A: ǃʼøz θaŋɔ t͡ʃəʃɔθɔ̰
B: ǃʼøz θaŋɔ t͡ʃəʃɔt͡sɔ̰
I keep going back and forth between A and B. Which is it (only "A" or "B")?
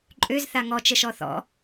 A